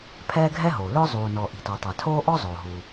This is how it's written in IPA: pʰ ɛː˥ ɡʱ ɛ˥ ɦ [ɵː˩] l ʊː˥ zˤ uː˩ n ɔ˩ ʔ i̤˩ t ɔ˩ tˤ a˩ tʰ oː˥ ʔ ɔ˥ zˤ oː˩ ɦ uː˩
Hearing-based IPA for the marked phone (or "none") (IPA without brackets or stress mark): oː˩